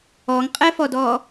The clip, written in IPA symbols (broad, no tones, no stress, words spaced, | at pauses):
ɔŋqʼɛfɔdɔ